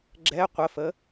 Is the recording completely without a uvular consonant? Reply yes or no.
no